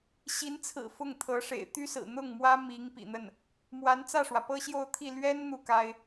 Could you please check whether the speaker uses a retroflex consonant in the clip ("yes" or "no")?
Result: yes